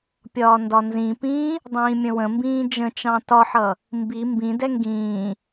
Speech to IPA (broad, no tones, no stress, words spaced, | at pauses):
pʲɒːndɒnzĩpĩː | dˤĩːmʲə̃wə̃mbĩː d͡ʒə̃t͡ʃɑ̃ tɒħʌ | mbi mbĩdɛ ŋɡĩː